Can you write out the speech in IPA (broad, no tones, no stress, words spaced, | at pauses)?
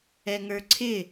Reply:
ɛŋə˞ǀʰɪ